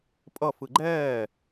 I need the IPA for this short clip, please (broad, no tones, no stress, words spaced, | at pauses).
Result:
pʼʌ fɯɡ͡ǃɛː